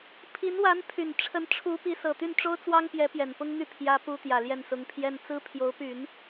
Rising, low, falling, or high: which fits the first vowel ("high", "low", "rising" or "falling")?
rising